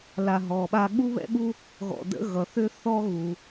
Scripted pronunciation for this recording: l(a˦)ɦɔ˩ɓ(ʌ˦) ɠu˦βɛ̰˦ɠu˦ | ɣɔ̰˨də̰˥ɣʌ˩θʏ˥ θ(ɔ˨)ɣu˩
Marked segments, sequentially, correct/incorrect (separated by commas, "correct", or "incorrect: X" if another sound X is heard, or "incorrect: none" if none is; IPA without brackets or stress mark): incorrect: a˨, incorrect: a˦, incorrect: ɔ˥